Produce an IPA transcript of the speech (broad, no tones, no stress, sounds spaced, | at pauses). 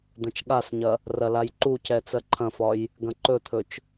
d̪ ɐ̃ t͡ʃ ɠ a s ɲ ɐ | r ɐ l a j ǃ u c ɛ t͡s ɜ ǃʰ ɐ̃ f ɒ j | ɡ ɐ̃ ǃ ɵ t̪ʰ ɵ t͡ʃ